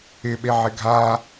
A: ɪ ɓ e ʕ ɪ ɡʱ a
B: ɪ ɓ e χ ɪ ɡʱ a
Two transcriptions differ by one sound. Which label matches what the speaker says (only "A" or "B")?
A